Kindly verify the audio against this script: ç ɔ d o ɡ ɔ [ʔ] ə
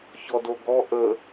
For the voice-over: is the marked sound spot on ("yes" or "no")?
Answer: yes